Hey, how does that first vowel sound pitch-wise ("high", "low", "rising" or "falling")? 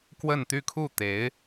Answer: falling